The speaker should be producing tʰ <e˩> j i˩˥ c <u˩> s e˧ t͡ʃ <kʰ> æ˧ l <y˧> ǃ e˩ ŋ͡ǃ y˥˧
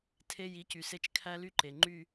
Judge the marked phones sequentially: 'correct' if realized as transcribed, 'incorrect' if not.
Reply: incorrect: e˧, incorrect: y˩, correct, correct

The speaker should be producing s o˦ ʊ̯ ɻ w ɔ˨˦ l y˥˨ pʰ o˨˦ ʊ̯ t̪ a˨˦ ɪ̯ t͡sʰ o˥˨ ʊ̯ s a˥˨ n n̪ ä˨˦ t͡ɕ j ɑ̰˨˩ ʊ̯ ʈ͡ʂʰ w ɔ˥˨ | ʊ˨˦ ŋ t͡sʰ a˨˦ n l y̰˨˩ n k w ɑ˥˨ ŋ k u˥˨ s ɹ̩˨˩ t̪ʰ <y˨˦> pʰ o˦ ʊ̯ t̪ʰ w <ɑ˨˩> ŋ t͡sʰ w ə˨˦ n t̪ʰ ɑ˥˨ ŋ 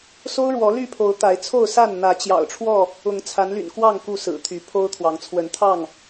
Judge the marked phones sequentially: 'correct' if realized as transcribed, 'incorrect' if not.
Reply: correct, incorrect: ɑ˨˦

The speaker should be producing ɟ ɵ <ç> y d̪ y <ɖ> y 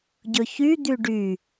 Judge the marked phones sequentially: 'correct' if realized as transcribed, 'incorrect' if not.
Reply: correct, correct

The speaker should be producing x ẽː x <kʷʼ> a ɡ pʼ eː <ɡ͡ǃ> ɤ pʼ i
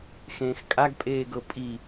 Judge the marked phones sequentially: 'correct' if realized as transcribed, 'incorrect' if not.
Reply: incorrect: kʼ, incorrect: ɡ

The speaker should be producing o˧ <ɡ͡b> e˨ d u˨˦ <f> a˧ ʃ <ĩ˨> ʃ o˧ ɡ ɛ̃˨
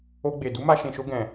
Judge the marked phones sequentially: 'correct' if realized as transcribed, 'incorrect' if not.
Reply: correct, incorrect: m, correct

